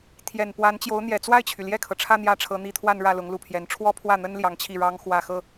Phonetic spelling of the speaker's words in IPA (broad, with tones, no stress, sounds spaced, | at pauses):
t̪ʰ j ɛ˨˩ n p w a˧˥ n t͡ɕ j o˧˥ ʊ̯ n̪ j ɛ˨˩ t͡s w a˥˩ ɪ̯ t͡ɕʰ y˩ l j ɛ˥˩ kʰ ɤ˩ ʈ͡ʂʰ ä˥˧ n̪ j ä˥˩ ʈ͡ʂʰ ɤ˧˥ n̪ i˧˥ t̪ʰ w a˥˧ n ɻ ä˥˩ l ʊ˧˥ ŋ l u˨˩ pʰ j ɛ˧˥ n ʈ͡ʂʰ w ɔ˥ pʰ w ä˥˩ n̪ ə˥ n l j ɑ˧˥ ŋ t͡ɕʰ i˥˩ ɻ ɑ˥ ŋ x w ä˥˧ x ɤ˥˩